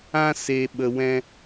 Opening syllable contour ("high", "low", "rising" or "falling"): high